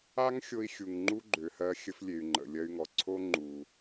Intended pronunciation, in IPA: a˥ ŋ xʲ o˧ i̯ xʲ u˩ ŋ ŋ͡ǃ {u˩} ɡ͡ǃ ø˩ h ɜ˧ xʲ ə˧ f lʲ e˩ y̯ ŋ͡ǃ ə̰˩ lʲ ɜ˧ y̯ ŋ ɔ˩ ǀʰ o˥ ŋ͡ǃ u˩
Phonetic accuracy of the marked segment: incorrect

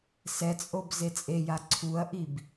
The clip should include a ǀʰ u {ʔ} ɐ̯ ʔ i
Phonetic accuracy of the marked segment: incorrect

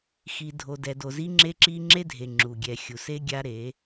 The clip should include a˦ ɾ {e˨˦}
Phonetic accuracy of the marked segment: correct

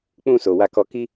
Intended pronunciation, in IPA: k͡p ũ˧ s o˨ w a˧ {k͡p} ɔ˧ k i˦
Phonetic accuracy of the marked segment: incorrect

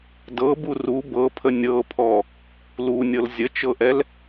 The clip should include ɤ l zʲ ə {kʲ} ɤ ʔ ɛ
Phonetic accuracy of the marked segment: incorrect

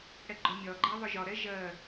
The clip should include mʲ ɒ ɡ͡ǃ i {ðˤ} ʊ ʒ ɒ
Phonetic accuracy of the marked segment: correct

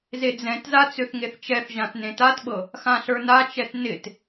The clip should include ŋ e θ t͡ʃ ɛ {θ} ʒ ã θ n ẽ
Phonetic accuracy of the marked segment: correct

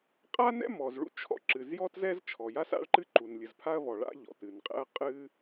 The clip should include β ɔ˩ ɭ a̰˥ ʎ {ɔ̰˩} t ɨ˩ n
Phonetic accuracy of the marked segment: correct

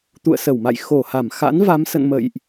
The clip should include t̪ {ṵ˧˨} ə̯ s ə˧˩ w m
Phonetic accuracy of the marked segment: correct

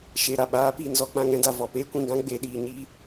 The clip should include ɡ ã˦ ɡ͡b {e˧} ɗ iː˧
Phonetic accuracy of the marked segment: correct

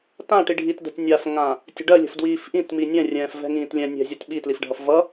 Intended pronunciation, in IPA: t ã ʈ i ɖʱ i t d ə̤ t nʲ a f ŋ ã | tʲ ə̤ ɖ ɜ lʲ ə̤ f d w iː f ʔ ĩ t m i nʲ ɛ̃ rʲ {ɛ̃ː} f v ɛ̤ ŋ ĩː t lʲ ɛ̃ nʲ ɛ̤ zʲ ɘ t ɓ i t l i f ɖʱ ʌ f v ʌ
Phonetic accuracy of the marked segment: correct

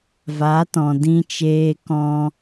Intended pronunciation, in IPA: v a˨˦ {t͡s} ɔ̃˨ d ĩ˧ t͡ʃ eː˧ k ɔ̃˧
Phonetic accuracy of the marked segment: incorrect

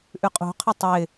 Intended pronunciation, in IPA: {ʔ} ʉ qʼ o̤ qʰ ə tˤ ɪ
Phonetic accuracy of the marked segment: correct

